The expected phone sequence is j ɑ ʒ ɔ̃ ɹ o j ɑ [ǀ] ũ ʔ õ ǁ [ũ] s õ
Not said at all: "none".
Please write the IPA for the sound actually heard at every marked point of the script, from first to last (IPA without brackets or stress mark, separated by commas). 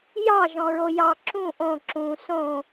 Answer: ǁ, ũ